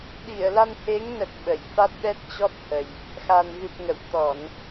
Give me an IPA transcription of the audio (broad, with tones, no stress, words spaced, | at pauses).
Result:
ɗi˧˩ə̯la˧nhe˨˦ŋnə˨˩t̚ ɓə˧˩jfa˦˥t̚ɗɛ˦˥t̚t͡ɕɔ˦˥t̚ hə˨˩j | xa˨˩nɣɨ˨˩p̚ ŋə̰˧˨w t̪ɔ˧˩˨n